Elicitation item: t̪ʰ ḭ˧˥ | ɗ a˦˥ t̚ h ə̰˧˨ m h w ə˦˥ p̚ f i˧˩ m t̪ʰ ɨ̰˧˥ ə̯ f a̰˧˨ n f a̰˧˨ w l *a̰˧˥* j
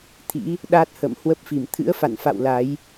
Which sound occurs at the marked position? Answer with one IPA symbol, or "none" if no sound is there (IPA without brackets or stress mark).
a˨˦